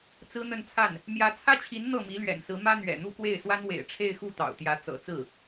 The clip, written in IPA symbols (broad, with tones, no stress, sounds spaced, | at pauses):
t͡s ɹ̩˥ n̪ ə˥˧ n t͡sʰ a˥˩ n | m j ä˧˥ t͡sʰ ä˥ t͡ɕʰ i˧˥ n n̪ ɤ˥˩ m i˧˥ l ɥ ɛ̰˨˩ n s ɹ̩˧˥ m ä˥ n̪ ɥ ɛ̰˨˩ n̪ u˥˧ k w e˥˩ ɪ̯ s w a˥ n w ḛ˨˩ ɪ̯ ʈ͡ʂʰ e˥˧ ɪ̯ x u˥˩ t̪ ɑ̰˨˩ ʊ̯ t̪ j ä˧˥ t͡s ɤ̰˨˩ t͡s ɹ̩˥˩